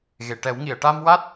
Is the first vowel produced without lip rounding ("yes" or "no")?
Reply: yes